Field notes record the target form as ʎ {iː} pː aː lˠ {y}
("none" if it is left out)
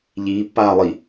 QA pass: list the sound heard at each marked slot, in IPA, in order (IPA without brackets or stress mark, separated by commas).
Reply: iː, i